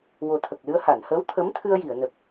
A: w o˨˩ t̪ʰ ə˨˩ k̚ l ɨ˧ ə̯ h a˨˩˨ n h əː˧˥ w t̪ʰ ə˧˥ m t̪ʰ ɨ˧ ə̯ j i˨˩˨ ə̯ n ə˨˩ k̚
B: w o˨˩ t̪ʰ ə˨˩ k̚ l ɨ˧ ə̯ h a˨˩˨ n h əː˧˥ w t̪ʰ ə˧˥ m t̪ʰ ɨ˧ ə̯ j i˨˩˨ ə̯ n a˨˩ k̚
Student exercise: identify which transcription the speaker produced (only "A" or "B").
A